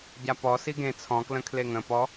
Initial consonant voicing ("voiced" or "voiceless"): voiced